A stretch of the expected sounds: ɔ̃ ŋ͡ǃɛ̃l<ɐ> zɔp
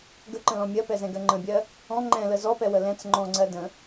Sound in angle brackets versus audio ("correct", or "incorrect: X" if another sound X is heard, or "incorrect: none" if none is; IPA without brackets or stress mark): incorrect: ə